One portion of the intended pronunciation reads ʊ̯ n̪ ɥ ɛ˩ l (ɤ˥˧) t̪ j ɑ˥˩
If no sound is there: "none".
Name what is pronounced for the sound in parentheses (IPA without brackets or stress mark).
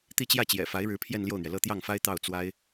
ɤ˥˧